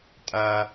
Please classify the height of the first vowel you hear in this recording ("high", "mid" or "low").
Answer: low